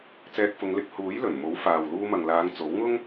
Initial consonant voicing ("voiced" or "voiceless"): voiceless